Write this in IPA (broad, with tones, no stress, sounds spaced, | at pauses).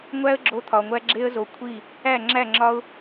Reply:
ŋʷ æ˦ ə̯ ɡ͡ǁ o˧ t̪ʰ ɒ˨ ŋʷ æ˦ ɡ͡ǁ e˦ ə̯ z o˧ kʷʰ i˦˨ | æ˦˨ ŋ͡ǁ æ˦˨ ŋ͡ǁ ɒ˦ ʊ̯